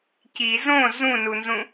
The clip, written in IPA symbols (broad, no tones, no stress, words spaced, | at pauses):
ci zõ zũnunzũ